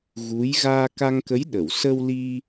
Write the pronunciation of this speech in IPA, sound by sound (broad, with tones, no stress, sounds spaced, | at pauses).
ɣ u˧˥ j ɣ aː˧ k a˧ ŋ k ə˧˥ j ɗ ə˨˩˨ w s ə˧ w l i˧